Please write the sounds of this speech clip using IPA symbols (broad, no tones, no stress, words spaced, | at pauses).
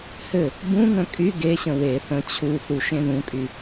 hɘ | bũŋə̃ kʼy ɡeɕə̃ we θə̃ t͡ɕʰuθu ʃẽðũkʼy